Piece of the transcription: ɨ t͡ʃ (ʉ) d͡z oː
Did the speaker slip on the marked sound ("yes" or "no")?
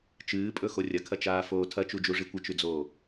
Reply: no